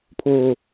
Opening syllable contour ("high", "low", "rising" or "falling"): low